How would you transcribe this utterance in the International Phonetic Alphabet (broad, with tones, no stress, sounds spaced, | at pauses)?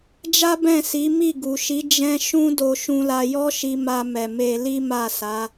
d͡ʒ a˦ b ɛ̃˦˨ s i˨˦ m i˦˨ ɡ u˨ ʃ i˨˦ d͡ʒ ɛ̃˦ ʃ ũ˦ d o˧ ʃ ũ˧ l a˧ j ɔ˦ ʃ i˧ m a˧ m ɛ˨ m e˧ l i˦ m a˦˨ s a˨˦